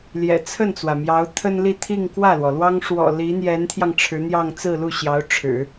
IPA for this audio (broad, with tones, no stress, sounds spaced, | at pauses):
l j ɛ̰˨˩ t͡sʰ ə˥˩ n t͡s w ä˩ m j ɑ˧˥ ʊ̯ t̪ʰ ə˥ n l i˥˧ t̪ʰ i˥˧ ŋ k w ä˥˩ l w ɔ˩ l w ɑ˥ ŋ ʂ w ɔ̰˨˩ l i˧˥ n̪ j ɛ˧˥ n t̪ʰ j ɑ˧ ŋ ʈ͡ʂʰ ɻ̩˧˥ n̪ j ɑ˥˧ ŋ t͡s ɹ̩˥˧ l u˥˩ ɕ j ɑ˧˥ ʊ̯ ʈ͡ʂʰ ɻ̩˨˩˦